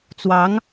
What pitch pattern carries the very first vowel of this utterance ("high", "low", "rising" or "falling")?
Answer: rising